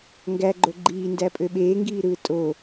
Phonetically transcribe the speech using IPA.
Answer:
ŋ ɡ æ ɡ͡ǃ o ɡ͡ǃ iː n d æ pʼ ø ɓ eː ŋ ɡ iː ɾ ɯː tʼ o

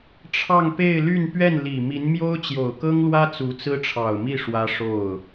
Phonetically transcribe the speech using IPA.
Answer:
ʈ͡ʂʰ ɑ˥˧ ŋ p e˥˧ ɪ̯ l y˥˧ n p ɥ ɛ˥˩ n l i˨˩ m i˧˥ n m j o˥ ʊ̯ t͡ɕ j o˨˩ ʊ̯ k ɤ˥ ŋ l w ä˥ t͡s u˧˥ t͡s ɹ̩˥ ʈ͡ʂʰ ɑ˨˩ ʊ̯ m i˥˩ ʂ w ä˥ ʂ o˥˩ ʊ̯

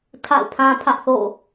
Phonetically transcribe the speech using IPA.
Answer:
tʰ a̰˦˨ ʊ̯ pʰ ã˦ pʰ ä˦ ʔ θ o̰˦˨

